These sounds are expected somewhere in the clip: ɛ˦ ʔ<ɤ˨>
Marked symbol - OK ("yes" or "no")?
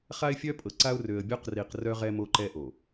no